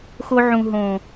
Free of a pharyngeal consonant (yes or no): no